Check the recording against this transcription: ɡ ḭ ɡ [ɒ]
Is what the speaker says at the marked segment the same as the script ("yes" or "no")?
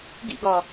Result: yes